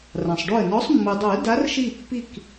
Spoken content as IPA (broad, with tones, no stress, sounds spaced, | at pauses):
r ã˩ sˤ ɖ o˧˩ ə̯ n ɔ˨˦ sˤ mː ɯ˩ dˤ o˨˩˦ ə̯ d a˨˦ r ʃ i˧˩ pː i˧˩ k